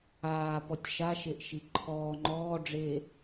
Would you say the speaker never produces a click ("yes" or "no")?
no